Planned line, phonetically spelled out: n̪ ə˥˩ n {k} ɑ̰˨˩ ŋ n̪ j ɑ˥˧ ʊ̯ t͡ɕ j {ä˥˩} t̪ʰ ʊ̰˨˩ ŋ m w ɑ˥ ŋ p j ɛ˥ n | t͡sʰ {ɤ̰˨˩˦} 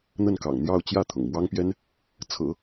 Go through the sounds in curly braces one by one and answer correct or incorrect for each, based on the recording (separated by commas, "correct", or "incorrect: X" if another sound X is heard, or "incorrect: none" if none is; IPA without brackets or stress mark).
correct, correct, correct